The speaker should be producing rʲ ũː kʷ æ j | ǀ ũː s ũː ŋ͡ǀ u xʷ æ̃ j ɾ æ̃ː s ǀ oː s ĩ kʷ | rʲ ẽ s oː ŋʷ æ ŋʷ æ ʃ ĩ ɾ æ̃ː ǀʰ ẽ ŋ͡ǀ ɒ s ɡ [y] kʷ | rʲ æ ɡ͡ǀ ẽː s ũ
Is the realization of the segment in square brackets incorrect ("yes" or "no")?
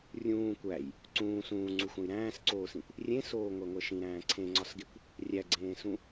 yes